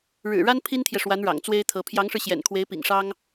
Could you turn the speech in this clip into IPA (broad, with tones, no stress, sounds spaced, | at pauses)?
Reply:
ɻ ɻ̩˨˩ ɻ a˥ n pʰ i˥ n t̪ʰ j ɛ˨ ʂ w a˧˥ n ɻ ɑ̰˨˩ ŋ t͡s w e˥ ɪ̯ t̪ʰ ɤ˧˥ pʰ j ɑ˧˥ ŋ ʂ ɻ̩˧ ɕ j ɛ̰˨˩ n kʰ w e˧˥ ɪ̯ p ḭ˨˩ ŋ ʂ ɑ˥ ŋ